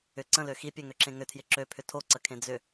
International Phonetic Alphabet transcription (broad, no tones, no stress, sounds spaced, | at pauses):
ʏ ǀ ə̃ l ø x i pʲ ø ŋ ø ǁ ẽ ŋ ʏ tʰ j ɪ ǁ ø pʰ ʏ tʰ o ǀ ə kʰ ẽ d͡z ʏ